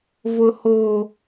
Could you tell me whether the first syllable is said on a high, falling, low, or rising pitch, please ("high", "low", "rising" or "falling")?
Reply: high